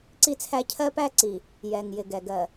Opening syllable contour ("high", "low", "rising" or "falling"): high